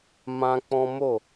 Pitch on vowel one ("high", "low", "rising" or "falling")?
high